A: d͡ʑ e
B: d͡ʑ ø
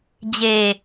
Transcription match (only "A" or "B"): A